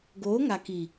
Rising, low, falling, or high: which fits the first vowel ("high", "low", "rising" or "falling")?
rising